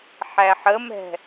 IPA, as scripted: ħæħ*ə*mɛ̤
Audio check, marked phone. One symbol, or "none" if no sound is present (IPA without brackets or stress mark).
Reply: ə